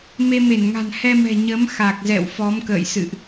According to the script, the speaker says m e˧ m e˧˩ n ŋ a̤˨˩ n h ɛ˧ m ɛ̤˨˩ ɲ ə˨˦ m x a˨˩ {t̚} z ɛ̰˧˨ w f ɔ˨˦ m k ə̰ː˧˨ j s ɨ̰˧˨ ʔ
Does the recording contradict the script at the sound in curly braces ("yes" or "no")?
yes